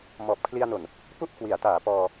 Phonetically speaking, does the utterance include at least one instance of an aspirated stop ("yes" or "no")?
yes